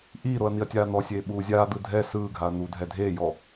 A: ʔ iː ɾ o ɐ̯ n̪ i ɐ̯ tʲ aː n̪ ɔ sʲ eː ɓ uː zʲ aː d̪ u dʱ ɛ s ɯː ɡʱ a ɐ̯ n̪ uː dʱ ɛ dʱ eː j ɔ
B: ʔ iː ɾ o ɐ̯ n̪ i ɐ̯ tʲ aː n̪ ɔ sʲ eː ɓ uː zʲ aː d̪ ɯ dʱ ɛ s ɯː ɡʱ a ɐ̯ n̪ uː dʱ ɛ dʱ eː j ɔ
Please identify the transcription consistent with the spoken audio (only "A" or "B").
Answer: B